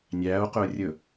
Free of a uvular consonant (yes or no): no